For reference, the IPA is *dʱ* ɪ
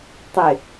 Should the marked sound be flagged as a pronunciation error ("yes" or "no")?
yes